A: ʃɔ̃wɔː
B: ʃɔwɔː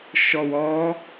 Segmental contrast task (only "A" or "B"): B